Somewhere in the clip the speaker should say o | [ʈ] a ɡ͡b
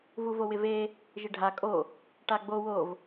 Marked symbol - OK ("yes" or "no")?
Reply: yes